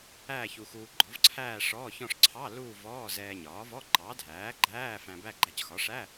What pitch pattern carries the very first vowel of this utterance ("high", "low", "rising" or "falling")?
falling